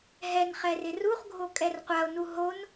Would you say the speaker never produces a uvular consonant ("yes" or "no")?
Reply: no